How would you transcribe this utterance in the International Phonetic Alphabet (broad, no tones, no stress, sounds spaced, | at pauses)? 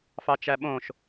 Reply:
f ɑ t͡ʃ æ ɓ õ ʃ